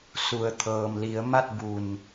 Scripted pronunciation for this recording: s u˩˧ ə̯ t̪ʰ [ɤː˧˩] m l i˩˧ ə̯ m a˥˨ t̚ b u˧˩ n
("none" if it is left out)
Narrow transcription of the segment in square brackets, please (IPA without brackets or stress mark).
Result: ɤː˩